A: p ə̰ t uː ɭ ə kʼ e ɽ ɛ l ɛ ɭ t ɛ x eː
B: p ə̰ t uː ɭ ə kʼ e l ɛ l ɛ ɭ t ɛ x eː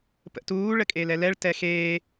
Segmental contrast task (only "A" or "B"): B